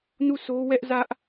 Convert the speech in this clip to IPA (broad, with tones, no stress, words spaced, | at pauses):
nu˦˨sʰo˦wɛ˦ʔzä˦ʔ